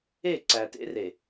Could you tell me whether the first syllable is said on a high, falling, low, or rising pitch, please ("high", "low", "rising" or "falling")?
falling